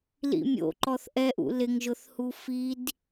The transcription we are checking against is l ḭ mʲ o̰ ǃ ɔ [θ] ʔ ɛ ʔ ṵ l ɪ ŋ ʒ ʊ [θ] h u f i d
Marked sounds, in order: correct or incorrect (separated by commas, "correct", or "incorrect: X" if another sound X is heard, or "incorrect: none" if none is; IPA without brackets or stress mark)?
correct, correct